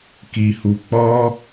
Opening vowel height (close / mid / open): close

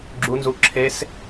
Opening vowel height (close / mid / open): close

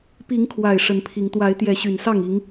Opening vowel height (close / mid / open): close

